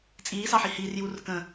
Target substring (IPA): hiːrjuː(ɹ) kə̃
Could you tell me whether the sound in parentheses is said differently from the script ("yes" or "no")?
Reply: yes